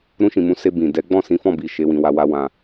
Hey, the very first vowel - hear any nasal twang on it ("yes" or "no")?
yes